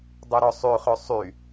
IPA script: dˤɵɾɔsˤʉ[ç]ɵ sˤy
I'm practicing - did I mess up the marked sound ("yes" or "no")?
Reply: yes